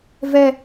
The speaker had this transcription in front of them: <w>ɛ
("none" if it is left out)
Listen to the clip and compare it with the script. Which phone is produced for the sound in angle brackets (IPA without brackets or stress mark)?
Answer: v